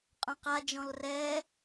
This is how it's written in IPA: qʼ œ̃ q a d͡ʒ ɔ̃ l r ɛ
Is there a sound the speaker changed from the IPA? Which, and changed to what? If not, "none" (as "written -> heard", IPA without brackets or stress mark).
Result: none